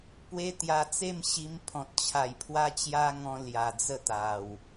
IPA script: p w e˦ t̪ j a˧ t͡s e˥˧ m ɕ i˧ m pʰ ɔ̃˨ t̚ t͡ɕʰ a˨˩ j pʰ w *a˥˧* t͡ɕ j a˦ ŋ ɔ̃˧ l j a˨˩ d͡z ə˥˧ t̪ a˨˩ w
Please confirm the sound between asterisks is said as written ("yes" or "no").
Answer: no